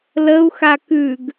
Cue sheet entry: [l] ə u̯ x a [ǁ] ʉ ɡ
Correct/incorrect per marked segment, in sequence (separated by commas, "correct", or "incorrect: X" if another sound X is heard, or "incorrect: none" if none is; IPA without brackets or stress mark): correct, incorrect: k